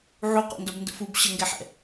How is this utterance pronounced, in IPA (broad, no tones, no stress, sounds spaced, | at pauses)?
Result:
ʕ u q ɔ̰ n d ʌ b n d ə̰ f u b ɕ ə ŋ ɡ ɛ ħ ɛ̰